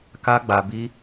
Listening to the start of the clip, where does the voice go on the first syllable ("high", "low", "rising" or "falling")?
high